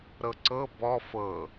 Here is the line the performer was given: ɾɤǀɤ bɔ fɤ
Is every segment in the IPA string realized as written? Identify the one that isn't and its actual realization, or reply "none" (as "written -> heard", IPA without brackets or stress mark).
none